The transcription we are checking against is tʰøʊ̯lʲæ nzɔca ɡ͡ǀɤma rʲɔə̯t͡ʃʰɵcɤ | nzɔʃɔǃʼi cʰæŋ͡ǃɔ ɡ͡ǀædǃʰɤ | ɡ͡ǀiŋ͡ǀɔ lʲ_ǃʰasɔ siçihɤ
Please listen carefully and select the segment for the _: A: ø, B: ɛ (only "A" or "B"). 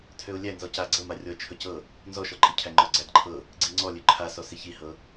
A